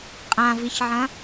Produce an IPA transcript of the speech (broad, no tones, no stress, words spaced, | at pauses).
qʼãviçʕɐ̃